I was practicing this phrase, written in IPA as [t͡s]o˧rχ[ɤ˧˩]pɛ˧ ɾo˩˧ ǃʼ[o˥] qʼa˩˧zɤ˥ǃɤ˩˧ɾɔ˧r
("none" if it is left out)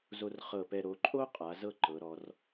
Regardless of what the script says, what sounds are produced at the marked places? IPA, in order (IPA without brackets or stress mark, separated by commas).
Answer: z, ɤ˧˩, o˥